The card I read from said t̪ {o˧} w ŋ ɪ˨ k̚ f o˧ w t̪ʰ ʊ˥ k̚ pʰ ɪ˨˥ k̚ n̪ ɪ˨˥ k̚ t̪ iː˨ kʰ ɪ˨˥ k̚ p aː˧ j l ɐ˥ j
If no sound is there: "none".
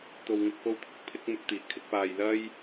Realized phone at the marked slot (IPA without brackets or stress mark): o˨